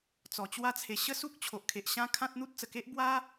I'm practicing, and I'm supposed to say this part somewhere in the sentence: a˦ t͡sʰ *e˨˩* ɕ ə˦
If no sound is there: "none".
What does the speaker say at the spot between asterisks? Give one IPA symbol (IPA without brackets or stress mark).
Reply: e˨˩